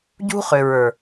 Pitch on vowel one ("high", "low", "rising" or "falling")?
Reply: high